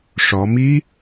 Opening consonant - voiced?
no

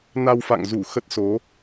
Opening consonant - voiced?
yes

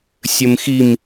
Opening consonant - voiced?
no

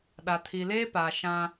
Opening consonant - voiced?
yes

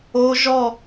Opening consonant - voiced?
yes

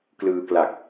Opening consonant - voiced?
no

